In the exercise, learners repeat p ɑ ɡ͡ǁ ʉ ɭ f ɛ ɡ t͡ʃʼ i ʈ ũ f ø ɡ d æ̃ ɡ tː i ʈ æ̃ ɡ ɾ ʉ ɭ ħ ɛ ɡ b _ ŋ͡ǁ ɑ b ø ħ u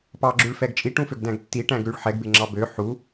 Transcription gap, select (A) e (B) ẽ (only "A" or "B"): A